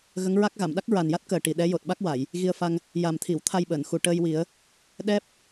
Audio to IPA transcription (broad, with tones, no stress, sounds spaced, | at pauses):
ɣ ə˧˥ ŋ ɹ a˦˥ k̚ ɣ a˨˩˨ m ɗ a˦˥ k̚ ɹ a˨˩ n j a˦˥ t̚ k əː˨˩ ʈ i˨˩ ɗ ɛ˧˥ j o˨˩ t̚ ɓ a˦˥ k̚ w a˨˩˨ j | ɣ i˧ ə̯ f a˧ ŋ | j a˨˩ m t̪ʰ i˨˩˨ w t̪ʰ a˧ j ɓ əː˨˩˨ n x u˨˩ ʈ əː˧ j w i˨˩˦ ə̯ | ɗ ɛ˦˥ p̚